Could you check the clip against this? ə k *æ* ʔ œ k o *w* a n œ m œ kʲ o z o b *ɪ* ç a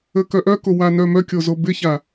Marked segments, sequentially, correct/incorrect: incorrect: œ, correct, correct

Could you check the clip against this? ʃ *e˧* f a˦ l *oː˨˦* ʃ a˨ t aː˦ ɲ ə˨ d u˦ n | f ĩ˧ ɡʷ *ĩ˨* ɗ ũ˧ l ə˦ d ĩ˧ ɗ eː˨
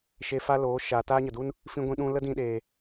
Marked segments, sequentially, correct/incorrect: correct, correct, incorrect: ĩ˧

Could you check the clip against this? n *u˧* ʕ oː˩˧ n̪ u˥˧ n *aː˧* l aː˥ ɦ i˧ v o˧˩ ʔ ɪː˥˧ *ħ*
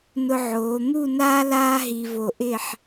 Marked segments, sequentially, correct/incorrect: incorrect: ʊ˧, incorrect: aː˥, correct

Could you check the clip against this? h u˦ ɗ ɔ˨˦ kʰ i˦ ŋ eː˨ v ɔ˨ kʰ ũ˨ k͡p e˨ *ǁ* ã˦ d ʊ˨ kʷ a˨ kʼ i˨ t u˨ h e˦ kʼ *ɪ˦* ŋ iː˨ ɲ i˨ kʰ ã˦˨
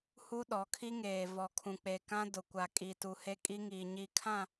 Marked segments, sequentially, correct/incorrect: incorrect: k, incorrect: i˦

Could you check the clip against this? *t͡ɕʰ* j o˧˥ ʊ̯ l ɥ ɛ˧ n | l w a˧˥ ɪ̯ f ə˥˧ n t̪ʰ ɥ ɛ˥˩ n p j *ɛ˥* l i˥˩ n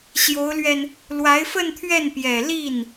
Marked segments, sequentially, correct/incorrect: incorrect: ɕ, incorrect: ɛ˨˩

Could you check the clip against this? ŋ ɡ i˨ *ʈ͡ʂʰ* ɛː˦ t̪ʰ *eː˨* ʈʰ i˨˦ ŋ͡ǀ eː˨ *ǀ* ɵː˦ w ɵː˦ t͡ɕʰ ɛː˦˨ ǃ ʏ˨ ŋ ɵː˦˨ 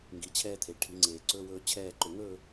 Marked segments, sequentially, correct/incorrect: incorrect: t͡ɕʰ, incorrect: e˨, correct

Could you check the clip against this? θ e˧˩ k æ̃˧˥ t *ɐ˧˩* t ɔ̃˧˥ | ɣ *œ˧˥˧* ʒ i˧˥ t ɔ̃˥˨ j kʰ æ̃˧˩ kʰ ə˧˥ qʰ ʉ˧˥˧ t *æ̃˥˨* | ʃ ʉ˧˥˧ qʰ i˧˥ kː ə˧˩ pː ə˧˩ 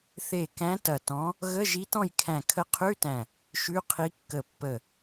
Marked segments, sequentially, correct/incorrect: correct, incorrect: ə˧˥˧, incorrect: æ̃˧˩

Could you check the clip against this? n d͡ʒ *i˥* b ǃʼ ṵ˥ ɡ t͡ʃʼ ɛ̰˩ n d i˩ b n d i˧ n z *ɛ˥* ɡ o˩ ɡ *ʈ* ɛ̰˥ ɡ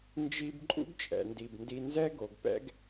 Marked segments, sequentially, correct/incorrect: incorrect: i˧, correct, incorrect: p

